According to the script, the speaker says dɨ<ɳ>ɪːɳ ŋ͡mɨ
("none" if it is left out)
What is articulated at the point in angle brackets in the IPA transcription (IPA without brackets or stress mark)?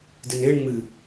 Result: n